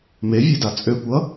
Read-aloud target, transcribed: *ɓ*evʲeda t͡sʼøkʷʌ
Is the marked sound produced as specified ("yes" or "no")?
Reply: no